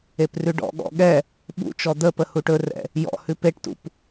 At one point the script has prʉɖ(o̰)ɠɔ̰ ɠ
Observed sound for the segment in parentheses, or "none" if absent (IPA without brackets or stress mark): ɔ̰